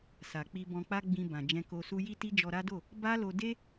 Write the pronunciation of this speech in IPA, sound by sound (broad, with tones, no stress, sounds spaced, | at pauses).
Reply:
s a˨ k͡p i˧ b ɔ̃˧ k͡p a˦ ɡ͡b ĩ˧ b ã˨ d͡ʒ ɛ̃˧ k o˧ s u˦ j i˦ t i˦ d͡ʒ ɔ˧ ɾ a˦ d o˦˨ | b a˦ l o˧ d e˦